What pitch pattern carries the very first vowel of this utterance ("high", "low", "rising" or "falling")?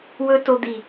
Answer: high